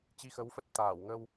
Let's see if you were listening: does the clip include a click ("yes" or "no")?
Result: no